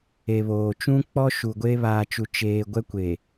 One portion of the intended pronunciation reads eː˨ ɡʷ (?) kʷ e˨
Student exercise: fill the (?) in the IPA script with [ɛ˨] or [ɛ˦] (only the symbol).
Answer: ɛ˦